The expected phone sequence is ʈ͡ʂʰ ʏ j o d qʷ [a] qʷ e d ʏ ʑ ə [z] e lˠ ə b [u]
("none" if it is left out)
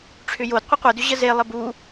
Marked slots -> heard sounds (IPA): ə, z, u

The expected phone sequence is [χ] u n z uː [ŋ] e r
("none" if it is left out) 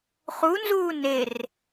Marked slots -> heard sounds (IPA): χ, n

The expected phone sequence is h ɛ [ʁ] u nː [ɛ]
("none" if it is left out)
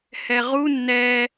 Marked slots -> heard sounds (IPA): ʁ, ɛ

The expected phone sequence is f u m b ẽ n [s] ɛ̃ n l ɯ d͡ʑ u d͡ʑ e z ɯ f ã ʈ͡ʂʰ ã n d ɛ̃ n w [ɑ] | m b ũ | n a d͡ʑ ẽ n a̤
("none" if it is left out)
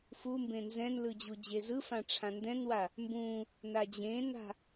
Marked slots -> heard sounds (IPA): z, a

